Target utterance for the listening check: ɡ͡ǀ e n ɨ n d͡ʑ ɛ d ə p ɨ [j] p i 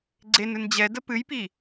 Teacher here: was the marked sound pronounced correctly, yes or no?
yes